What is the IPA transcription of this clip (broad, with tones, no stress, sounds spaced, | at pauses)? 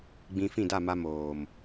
ɡ͡b ĩ˧ f ĩ˦˨ d a˦˨ m a˧ m oː˨ m